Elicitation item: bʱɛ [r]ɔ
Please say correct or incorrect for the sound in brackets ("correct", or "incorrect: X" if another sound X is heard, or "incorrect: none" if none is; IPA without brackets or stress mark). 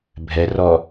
correct